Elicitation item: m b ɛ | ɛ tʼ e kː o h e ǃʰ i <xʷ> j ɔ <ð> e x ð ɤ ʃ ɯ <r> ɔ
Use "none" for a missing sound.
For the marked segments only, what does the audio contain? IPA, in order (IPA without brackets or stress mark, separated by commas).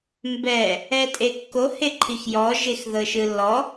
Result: x, ʒ, lː